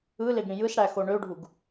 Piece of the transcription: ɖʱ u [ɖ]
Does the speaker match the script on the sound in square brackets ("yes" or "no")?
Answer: no